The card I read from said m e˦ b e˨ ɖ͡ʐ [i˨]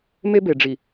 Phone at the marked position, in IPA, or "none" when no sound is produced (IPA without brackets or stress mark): i˨